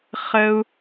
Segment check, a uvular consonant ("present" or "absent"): present